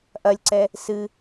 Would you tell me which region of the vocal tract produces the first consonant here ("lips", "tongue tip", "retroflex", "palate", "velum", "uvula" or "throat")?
throat